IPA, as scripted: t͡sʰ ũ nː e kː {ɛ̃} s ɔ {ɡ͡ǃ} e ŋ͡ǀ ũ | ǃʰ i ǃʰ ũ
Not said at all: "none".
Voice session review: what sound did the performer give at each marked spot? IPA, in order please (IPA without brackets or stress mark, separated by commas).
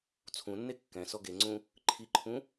ɛ̃, ɡ